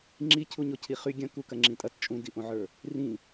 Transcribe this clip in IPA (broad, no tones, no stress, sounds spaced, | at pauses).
ŋ͡ǁ i cʰ u ɲ o cʰ i χ y ɡʲ ɐ̃ k u k ɐ ŋ͡ǁ ĩ tʼ ɐ t t͡ʃʼ ũ d i ʔ õ ʕ ə˞ | r ĩ